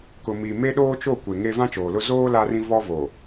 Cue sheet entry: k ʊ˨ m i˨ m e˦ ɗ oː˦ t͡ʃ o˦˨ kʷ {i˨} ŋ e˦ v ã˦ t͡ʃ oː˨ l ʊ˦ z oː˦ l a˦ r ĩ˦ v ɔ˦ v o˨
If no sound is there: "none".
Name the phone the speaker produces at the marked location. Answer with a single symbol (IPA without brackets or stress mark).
e˨